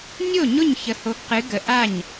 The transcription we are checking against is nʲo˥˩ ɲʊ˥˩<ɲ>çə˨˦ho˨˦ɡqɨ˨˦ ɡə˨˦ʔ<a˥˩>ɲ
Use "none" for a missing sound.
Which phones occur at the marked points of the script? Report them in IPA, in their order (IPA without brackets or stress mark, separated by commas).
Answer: ɲ, a˥˩